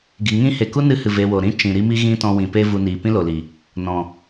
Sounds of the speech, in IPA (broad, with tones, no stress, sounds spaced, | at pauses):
ɡ i˨ ŋ ĩ˦ h e˨ k u˦ n ɨ˧ h ɨ˨ v e˧ w o˨ ɾ ĩ˦ t͡ʃ ĩ˨ ɾ i˦ m i˦ ɣ ĩ˦ t ɔ̃˧ w ĩ˨ p e˦ v u˧ n iː˨ p ĩ˦ l o˨ l i˨ | n ɔ̃˨